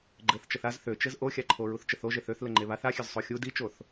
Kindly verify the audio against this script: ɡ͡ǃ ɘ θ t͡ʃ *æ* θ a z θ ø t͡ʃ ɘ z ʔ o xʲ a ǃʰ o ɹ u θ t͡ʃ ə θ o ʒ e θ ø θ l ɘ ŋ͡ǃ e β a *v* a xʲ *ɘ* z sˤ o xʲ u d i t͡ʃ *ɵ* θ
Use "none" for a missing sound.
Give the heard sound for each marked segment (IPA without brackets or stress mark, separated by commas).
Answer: ə, θ, ø, o